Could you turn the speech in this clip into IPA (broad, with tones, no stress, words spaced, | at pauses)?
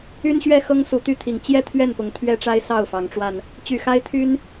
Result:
y˦nɕɥɛ˥˨xɤ˦ŋ su˨˦t̪y˥˨t̪ʰi˨˩ŋ t͡ɕjɛ˥˨t̪ʰɥɛ˥˨npʊ˨˦ŋ t̪ʰɥɛ˦ʈ͡ʂa˦ɪ̯ sɑ˥˨ʊ̯fɑ˨˦ŋʈ͡ʂwa˧n | t͡ɕy˨˩xa˦ɪ̯t̪ʰy˦n